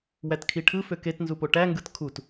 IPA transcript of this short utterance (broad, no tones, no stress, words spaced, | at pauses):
wætkʰiʈʰɯ føketnzupo ʈæŋɡɯt kʰut